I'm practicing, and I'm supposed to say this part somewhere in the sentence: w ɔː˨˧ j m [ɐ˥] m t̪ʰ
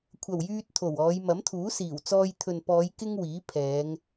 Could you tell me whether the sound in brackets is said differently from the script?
yes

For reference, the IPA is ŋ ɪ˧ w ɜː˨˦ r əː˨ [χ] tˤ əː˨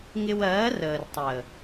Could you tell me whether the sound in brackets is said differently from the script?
yes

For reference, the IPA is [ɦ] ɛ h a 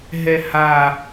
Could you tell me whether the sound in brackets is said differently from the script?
no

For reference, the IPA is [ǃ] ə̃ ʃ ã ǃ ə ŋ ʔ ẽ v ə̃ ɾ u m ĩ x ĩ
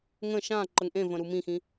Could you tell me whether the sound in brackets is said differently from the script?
yes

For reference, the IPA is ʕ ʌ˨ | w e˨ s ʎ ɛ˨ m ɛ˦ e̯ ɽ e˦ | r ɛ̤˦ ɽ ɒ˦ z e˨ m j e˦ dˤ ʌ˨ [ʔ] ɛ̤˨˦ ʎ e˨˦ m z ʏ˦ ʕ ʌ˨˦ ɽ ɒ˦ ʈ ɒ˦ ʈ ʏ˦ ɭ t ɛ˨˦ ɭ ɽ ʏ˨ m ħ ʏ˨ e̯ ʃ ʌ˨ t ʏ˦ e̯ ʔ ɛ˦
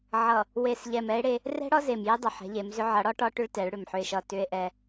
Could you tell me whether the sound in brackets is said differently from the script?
yes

